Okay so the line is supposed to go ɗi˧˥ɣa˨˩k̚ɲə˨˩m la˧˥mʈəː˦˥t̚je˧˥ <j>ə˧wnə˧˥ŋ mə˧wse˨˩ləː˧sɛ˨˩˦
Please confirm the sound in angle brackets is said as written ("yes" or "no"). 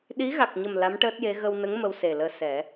no